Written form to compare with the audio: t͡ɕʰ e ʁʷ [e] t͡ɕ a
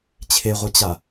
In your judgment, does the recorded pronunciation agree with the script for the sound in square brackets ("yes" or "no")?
yes